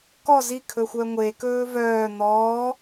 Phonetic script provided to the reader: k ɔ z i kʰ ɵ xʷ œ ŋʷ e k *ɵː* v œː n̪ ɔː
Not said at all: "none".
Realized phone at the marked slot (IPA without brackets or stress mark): ɵː